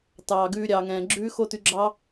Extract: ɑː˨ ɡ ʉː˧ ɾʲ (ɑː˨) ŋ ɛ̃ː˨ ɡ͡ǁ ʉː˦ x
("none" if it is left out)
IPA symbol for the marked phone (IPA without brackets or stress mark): ɑː˨